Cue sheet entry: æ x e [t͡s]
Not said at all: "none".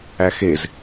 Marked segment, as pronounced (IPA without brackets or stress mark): z